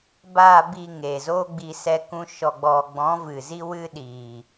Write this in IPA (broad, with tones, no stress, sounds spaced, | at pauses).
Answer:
b aː˨ b i˨ ŋ eː˨ z o˦ ɡ͡b i˧ s ɛ˧ k ũ˧ ʃ ɔ˨ ɡ͡b ɔ˨ ɡ͡b ɔ̃˨˦ v ɨ˨ z i˦ w ɨ˦ ɗ iː˨